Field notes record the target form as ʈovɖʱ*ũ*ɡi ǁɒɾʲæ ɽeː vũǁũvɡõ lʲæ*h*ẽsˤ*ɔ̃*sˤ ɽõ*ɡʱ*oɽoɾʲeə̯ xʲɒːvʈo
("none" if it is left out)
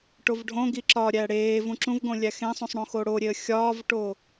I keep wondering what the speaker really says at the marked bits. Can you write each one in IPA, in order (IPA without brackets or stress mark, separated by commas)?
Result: õ, x, õ, x